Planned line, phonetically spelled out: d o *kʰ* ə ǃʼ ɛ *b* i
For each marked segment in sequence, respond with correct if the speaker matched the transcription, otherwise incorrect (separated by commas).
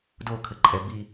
correct, correct